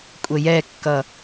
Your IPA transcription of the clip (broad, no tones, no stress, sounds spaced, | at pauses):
kʷʼ ə j ɛ kː ʌ